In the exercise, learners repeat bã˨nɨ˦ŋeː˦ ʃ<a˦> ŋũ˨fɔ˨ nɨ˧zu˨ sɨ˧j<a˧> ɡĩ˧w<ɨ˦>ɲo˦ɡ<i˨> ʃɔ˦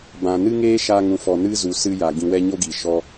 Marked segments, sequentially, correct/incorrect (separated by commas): incorrect, incorrect, incorrect, correct